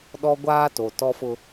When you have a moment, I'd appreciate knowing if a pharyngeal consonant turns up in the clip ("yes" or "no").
no